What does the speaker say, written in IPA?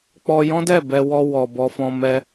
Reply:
k͡p ɔ˧ j ɔ̃˦ d ɛ˦˨ b ɛ˧ w ɔ˧ w ɔ˨ b ɔ˧ f ɔ̃˧ m ɛ˦

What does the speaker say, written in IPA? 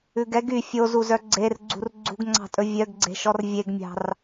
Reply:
ʉ ɡ ɛ ɡ y fʲ o z u z œ ɡ͡ǀ e r ɡ͡ǀ ṳ r ɡ͡ǀ ṳ ɡ ŋ͡ǀ ɑ̤ tʼ ɵ vʲ œ ɡ ɡ͡ǀ e̤ ʃ ɔ r vʲ e ɡ mʲ ɑ̤ r

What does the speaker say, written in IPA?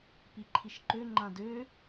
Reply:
p i ǃʰ i ʃ ǃ ø ŋ͡ǃ ã d ø

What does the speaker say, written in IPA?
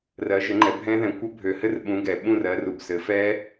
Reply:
r ɜ˨˦ ʒ ɘ˨˦ ŋ͡ǃ ɛ˨˦ bʱ ɛ̃˦˥ ð ɛ̃˨˦ kʷ ɘ˦˥ bʱ ø˨˩ h ɘ˥˧ r ɓ ũ˨˦ ɡ ɛ˨˩ ɓ ũ˥˧ r ɜ˨˦ r u˨˩ b s ɘ˨˦ f ɛ˦˥

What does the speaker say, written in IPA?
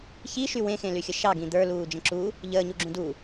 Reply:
ç i ʃ y w ẽ x ẽ l y xʲ ə ʃ ɑ ɡ ĩ d̪ ə˞ l uː d͡ʒ ə̃ ǁ u | ʎ əː ɲ u ɡ͡ǁ ũ d u

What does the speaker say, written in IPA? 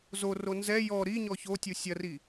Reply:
z o r o n z ɛ j ɔ ɾ i ɲ ɔ ç o tʲ u sʲ ɐ r i

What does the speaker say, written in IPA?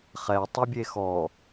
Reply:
χ ɛ tˤ i bʲ e x ɔ

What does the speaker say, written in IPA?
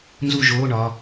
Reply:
n z u˥˨ ʒ oː˧˥˧ ɳ ɒ˩˧˩

